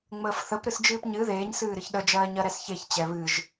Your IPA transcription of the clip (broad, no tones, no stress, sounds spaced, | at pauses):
ŋ͡m əː f θ ə p ɾ ɨ s d͡ʒ ɨː p ɲ ɨ ð eː ɲ s ɨː ɾ ɨ ç ɗ ə d͡ʒ ɜː ɲ ɜ ɾ ɛ s ç e ç t͡ɕ ɛ β ɨ ʒ